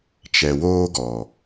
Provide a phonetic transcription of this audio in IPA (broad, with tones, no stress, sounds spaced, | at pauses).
t͡ʃ ɛ˨ w oː˦ ɡ ɔ˨